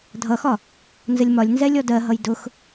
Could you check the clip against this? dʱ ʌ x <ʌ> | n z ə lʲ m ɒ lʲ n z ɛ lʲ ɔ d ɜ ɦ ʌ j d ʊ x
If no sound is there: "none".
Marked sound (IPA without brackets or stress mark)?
ɒ